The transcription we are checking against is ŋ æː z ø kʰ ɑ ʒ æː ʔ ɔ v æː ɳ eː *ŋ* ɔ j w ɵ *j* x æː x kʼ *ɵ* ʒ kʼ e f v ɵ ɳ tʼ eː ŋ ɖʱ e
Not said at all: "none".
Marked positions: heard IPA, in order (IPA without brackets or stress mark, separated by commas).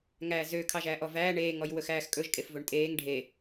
ŋ, none, ɵ